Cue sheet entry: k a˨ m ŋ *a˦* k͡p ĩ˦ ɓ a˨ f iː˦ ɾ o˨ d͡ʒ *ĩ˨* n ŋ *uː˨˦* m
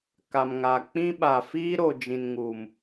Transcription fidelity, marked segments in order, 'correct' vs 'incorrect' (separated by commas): incorrect, correct, incorrect